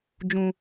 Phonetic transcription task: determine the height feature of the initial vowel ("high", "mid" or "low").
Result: high